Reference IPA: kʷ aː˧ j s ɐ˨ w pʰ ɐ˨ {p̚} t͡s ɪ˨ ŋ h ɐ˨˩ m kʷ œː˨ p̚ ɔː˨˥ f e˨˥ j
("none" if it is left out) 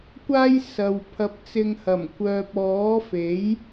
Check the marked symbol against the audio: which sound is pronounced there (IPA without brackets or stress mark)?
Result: p̚